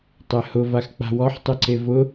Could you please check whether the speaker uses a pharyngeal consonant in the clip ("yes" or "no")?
yes